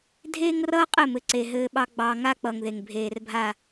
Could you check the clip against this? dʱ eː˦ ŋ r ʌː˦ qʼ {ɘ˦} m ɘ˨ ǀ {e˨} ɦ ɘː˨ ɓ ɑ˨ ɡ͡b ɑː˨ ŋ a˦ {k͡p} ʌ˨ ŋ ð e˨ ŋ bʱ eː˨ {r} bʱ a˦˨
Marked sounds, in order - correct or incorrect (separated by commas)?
incorrect, correct, correct, correct